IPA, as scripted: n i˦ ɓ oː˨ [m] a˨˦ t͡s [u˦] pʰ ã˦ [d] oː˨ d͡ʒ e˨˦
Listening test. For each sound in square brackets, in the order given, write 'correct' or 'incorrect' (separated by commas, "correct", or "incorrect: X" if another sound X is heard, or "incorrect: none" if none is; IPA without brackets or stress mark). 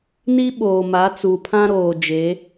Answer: correct, incorrect: u˨, incorrect: ɾ